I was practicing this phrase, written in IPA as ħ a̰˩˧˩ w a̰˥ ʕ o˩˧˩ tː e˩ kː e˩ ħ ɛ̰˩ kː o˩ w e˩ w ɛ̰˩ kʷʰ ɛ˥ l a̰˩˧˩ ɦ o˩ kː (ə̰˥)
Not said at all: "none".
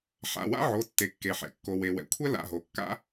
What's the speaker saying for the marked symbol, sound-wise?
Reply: a̰˥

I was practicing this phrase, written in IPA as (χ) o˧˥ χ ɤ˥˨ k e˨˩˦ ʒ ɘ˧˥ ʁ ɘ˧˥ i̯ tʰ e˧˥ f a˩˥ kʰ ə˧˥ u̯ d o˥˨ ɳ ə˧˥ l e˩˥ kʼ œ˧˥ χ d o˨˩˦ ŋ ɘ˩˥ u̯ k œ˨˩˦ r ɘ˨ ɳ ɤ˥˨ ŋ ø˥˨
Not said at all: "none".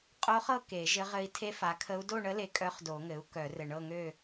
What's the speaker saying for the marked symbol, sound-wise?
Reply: qʼ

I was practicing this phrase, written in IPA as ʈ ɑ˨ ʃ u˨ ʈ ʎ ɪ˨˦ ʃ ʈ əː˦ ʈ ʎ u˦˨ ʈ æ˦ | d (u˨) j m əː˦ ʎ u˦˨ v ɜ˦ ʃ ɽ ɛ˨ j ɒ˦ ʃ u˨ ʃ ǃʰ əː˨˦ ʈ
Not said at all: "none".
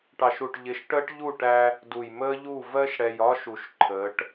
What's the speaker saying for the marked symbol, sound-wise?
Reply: u˨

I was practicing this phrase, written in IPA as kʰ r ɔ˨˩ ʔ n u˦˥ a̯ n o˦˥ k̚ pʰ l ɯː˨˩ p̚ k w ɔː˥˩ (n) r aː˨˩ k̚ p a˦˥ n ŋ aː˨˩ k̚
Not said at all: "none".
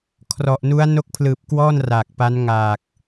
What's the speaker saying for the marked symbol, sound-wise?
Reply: n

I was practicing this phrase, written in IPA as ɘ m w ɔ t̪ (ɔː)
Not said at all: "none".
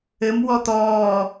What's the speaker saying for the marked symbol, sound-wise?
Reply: ɔː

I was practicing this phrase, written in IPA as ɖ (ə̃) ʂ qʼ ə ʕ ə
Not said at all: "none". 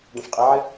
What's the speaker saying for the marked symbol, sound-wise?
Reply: ə̃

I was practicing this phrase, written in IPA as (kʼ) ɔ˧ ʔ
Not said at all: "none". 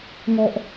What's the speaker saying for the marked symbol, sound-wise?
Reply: ŋ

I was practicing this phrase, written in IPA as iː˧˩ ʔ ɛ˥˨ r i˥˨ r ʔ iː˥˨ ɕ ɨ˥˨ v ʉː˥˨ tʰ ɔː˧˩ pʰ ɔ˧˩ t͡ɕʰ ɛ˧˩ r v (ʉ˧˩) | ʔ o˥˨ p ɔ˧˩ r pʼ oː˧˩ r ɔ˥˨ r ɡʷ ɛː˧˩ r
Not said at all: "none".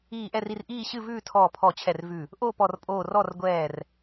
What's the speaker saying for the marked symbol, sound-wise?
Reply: ʉ˧˩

